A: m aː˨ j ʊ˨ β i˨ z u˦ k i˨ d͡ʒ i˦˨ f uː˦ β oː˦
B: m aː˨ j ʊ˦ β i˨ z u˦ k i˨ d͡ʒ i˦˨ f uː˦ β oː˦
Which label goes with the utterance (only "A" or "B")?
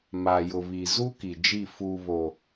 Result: A